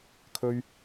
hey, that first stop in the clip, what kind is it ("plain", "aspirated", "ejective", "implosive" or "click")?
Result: aspirated